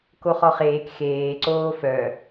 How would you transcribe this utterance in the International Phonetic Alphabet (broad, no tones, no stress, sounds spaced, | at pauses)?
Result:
k o χ ɔ χ eː k x eː ǀ oː f œ